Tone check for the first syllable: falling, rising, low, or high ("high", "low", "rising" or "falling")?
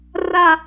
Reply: high